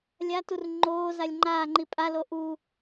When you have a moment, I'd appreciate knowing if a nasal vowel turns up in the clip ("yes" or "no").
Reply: no